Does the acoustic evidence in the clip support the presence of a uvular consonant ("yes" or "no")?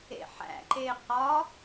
yes